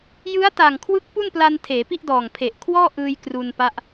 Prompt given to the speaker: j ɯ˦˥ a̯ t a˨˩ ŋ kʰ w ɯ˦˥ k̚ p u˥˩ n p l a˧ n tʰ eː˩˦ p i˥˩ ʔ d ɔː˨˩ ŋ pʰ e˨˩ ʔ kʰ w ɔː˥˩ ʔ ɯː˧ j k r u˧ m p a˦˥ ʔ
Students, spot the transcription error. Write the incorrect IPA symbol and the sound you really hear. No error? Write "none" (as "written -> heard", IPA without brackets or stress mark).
m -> n